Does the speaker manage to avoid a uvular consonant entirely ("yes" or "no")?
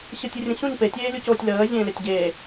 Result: yes